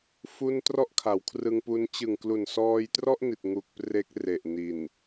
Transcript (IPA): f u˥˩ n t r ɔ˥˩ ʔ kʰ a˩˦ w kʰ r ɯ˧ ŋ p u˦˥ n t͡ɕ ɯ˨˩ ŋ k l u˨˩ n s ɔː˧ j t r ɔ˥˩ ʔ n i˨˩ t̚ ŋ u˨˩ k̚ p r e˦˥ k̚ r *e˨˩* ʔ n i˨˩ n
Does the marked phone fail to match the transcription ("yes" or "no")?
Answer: no